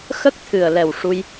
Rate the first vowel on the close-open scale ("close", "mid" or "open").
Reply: mid